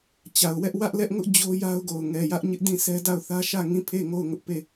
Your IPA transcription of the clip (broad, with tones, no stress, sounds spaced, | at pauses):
t͡ɕ a˨ ʊ̯ w ɛ˦ ʔ w ä˦ ʔ l ɛ˦ ʔ ŋ ʊ˦ ʔ d͡ʑ o˦ j a˦ ʊ̯ ɡ o˨ ʊ̯ ŋ ɛ˨ j ä˦ ʔ ɲ ɪ˦ ʔ d ĩ˦˨ s ɛ˦ d a˦˨ ʊ̯ θ ä˦ ʃ ä˦˨ ŋ ĩ˦˨ pʰ e˦˨ ŋ o˦˨ ʊ̯ ŋ ʊ˦ ʔ p e˦˨